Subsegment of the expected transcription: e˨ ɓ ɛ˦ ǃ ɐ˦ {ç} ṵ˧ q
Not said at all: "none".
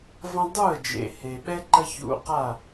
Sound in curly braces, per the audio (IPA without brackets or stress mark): ç